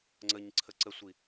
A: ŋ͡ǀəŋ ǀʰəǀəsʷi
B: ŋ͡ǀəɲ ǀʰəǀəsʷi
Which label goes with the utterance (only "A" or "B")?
B